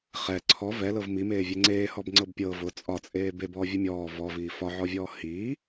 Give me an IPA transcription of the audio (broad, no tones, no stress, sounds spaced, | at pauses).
χ ɛ ǀʰ ɔ v ɛ l ɤ v m i m eː vʲ ɛ ŋ͡ǀ eː h ɔ b ŋ͡ǀ ɤ b pʲ ɤ v ʊ t͡sʼ ɒ t͡sʼ eː b e b ɔː vʲ ɨ mʲ ɔː v ɔ v iː f ɒ ʕ ɔ vʲ ɔː h iː